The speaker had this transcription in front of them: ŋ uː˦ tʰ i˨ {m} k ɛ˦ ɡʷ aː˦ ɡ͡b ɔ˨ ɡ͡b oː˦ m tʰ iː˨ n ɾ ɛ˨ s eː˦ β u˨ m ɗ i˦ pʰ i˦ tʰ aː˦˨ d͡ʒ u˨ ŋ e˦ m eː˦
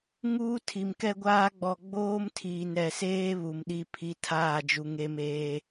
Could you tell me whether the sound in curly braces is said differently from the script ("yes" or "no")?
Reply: no